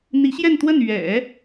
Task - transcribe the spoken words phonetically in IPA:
n̪ i˧˥ ɕ j ɛ˥˧ n t̪ w ə˥˩ n ɥ ɛ̰˨˩˦

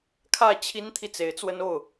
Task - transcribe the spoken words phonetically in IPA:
kʰ ä˥˩ t͡ɕʰ i˥ n t̪ʰ i˨ t͡s e˧˥ ɪ̯ t͡s w ə˥ n o˥˩ ʊ̯

